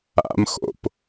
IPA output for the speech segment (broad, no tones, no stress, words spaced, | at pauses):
a̰mxo̰p